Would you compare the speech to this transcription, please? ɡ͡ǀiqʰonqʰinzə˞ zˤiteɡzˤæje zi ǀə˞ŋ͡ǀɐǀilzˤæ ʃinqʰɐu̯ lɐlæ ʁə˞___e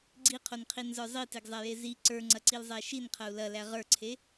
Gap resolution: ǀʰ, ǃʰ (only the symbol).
ǀʰ